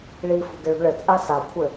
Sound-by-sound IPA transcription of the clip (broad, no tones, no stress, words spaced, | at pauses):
ɭifṳ ɡɘɭṳɭɘt͡sʼa sakʷʰɘ